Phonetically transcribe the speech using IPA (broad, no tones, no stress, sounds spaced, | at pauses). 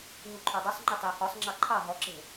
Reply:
ɦ u ǃʰ ɔ dˤ u sˤ ŋ͡ǃ ɪ tˤ ɪ o̯ h ɔ sˤ ŋ͡ǁ ɑ ǃʰ ɑ ɦ ɔ ǁ e̤